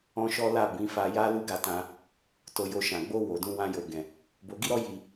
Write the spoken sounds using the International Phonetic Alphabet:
ɔ̃˦ʃɔ˦la˦˨ bĩ˨˦fa˧ja˦ lu˦ɡa˧tã˧ | to˧jo˧ʃã˨ ɡ͡bo˧ wo˨dũ˧ wã˧jo˨ɡɛ̃˨ | bo˧ɡi˦ɾɔ˦ ji˧

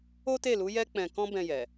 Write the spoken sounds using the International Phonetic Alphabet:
o˦te˦˨lu˨˦ jɛ˦k͡pɛ̃˧ kɔ̃˦bɛ̃˧jɛ˨

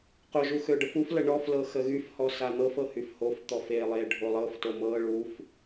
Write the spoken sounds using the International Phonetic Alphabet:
qʊʒu xøɖəfuflə ɳɔflɤ xəɣyfhɔ san̪ɤfɤ hyfhoft̪ɔf elˠe ɖʱolˠɤfto mɤ ɭuf

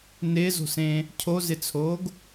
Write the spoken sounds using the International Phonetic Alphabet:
nɪːzo̤sẽː | cʰozɪt͡sʰoːɡ

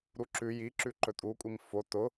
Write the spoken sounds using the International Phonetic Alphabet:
ɾuǁʉ ji ǁʉǃɵtʼu kʷʼimfo tʊ

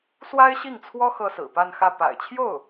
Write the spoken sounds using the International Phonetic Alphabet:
swa˥ɪ̯ɕi˥˩ŋt͡sʰwɔ˥ xɤ˥sɹ̩˨˩ pa˥˧nxä˥˩ pa̰˨˩ɪ̯t͡ɕʰjo˥˩ʊ̯

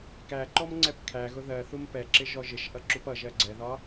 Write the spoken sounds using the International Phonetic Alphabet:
kæǃɔmŋ͡ǀɛp kʰæɣʊ ðɜθum pɛǁɪʒɔ ʒɪʃʔʌǁup ʌʒɜ ɡ͡ǀɛðɒ

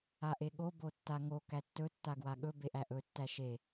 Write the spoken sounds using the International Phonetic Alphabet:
aʔeɠo botːaŋo kætːɵ tːaɡwaɠɵ beʔæʔɵ tːæʃe

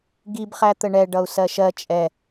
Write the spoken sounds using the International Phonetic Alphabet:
ɡibχæt̪ə ɳɛɖʌu̯ sɜʃɜ t͡ʃʼɛ

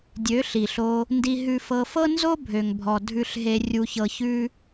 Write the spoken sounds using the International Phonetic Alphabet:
dʲø˨˦ ɬi˨ɬo˧ | ndi˧ɦʉ˧fɤ˧ fɤ˦nzo˦bʱø˨ŋbʱɔ˨ dʱʉ˧ɬɦe˧ rʲu˧çɤ˧çʉ˦

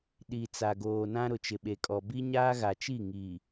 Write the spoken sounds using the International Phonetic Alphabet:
ɗi˨t͡sa˨ ɡoː˨nã˦ ɾʊ˨t͡ʃɪ˨ɓe˨kʼɔ˨ bi˦ɲaː˦ɣa˨ t͡ʃi˦˨ŋiː˨

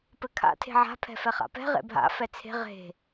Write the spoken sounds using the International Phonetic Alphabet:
pɘkʰa̰ tʰe̤ʕa̤pʰɛ̤ fɛχa̰pɛ̤ ʁḛbʱa̰ fɛt͡sʰe̤ ʁe̤

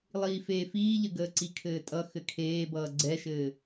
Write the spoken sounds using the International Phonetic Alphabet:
lˠiːfeːfiːʎə ɡəːǀikʰɘːtʼʌ xɘkʰeːbʌː ɡ͡ǀɛʃɘː

